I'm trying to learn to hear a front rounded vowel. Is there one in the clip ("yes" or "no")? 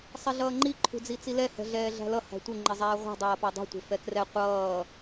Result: no